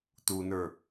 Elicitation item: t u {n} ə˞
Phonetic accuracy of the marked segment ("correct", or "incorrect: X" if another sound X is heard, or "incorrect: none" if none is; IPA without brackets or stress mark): correct